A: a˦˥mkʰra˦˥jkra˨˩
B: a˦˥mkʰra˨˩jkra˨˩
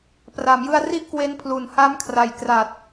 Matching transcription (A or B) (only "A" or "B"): B